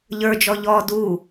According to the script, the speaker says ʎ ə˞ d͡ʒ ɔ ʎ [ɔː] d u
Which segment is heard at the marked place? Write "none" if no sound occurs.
ɔː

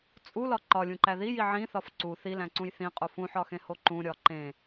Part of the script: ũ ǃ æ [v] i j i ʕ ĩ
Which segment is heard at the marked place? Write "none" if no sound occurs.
ð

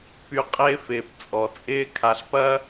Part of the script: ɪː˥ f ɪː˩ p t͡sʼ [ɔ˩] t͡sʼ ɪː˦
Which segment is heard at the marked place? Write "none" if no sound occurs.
ɔ˩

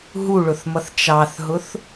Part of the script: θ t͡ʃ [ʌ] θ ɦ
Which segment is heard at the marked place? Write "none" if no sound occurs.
ɑ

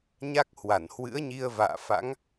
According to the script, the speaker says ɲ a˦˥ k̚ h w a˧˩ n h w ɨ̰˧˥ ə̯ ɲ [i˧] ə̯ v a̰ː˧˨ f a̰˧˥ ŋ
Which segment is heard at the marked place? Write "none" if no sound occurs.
i˧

